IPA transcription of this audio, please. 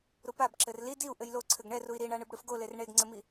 ɾ u p a b ǁ ɘ r l i d i u̯ ʔ ɘ j l o ǀʰ ɘ ɡ ɳ ɛ r u i̯ ɾ i ɳ a ɳ ɨ b ɽ ɨ f ɡ o l e r ɳ e ɡ ŋ͡ǀ ɘ m i

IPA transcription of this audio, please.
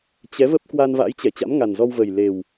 t͡ɕ ɛ˨˦ v ə˦˥ p̚ k w a˧ n v a̰˧˥ j t͡ɕ ɛ˧˩ t͡ɕ a̰˧˥ m ŋ a˨˩ n z ɔ˧ w v ə˨˩ j l e˨˩ w

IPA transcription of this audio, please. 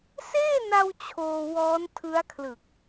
s eː˥˩ n a˧ w t͡ɕʰ oː˧ w ɔː˦˥ n tʰ ɯ˦˥ a̯ kʰ l ɯ˨˩ k̚

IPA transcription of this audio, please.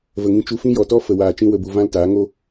v ə˨ ŋ ĩ˧ t͡ʃ u˧ f ĩ˦ j ɔ˨ t ɔ˦ f ə˨ w aː˨ t͡ʃ ĩ˧ w ə˨ b u˨ v ã˦ l t aː˨˦ ŋ o˦

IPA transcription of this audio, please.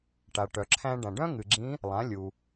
ʈ a˩ ʈ œ˩ ǁʰ æ̃˧ ɖ ã˩ ɖ œ̃˥ ŋ ɨ˩ ɡ͡ǁ ĩ˧˥ | lˠ ã˩˧ lʲ u˩

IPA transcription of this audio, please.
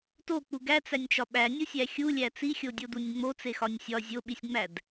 t o k͡p u ɡ æ t͡s æ nʲ t͡ʃ ɒ ɓ æ nʲ u sʲ æ xʲ u lʲ æ t͡s i xʲ o dʲ o d u nʲ ŋ͡m o t͡s e x ɒ nʲ sʲ ɒ zʲ o ɓ i sʲ ŋ͡m æ d

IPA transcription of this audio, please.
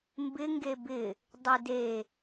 m b ɪ ŋ ɡ e b ɪ | dˤ ɪ d e

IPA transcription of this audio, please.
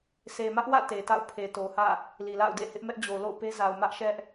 sʰ e˨ m ä˦ ʔ w ä̰˦˨ t e˨ t a̰˦˨ ʊ̯ pʰ e˨ t o˨ h ä̰˦˨ | l i˨ l a̰˦˨ ʊ̯ d ḛ˦˨ h ɪ˦ ʔ m ɛ˦ ʔ d͡ʑ o˨ l o̰˦˨ ʊ̯ p e˦ z a˨ ʊ̯ m ä˦ ʔ ʃ ɛ˦ ʔ

